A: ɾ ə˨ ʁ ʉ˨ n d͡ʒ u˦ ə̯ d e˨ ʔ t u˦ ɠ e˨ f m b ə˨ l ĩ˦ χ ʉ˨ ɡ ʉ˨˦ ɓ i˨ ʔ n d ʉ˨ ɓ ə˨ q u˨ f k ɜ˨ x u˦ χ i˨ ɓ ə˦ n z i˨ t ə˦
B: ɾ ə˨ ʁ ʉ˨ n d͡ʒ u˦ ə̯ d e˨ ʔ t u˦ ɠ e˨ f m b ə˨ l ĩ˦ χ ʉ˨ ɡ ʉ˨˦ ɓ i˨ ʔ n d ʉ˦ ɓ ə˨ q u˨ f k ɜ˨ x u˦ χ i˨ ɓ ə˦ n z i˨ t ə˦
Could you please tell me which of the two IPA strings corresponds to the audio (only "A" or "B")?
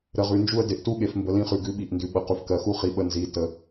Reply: A